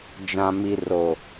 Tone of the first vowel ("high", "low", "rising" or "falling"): low